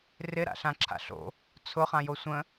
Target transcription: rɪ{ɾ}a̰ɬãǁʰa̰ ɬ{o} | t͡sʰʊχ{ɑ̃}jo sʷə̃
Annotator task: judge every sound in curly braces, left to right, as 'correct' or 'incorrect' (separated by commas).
correct, incorrect, incorrect